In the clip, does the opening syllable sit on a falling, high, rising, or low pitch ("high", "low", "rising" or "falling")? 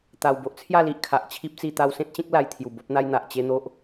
low